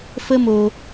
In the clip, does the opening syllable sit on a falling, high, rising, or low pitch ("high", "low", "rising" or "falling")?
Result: high